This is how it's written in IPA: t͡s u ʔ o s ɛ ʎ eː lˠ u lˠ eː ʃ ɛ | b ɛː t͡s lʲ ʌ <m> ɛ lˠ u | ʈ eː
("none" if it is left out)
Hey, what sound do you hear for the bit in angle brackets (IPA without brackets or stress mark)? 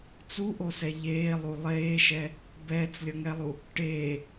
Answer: ŋ